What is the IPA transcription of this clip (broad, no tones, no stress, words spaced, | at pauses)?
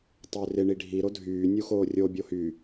tˤørɪ ɳiɖʱi ɾodʱyː nʲuxoːrʲo bʲohy